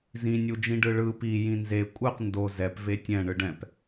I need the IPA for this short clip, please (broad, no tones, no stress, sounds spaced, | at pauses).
z ĩ nʲ u d͡ʒ ĩ ɖ ɯ ɭ ɯ p i j ĩ n z e kʷʼ ɯ q n d o z ɛ p v e tʲ ɛ̃ ɳ ɯ ɖ ɛ̃ p